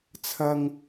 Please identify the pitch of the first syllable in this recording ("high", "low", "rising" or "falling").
low